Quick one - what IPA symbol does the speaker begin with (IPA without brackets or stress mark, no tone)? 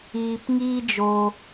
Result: iː